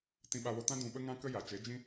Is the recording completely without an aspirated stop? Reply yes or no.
yes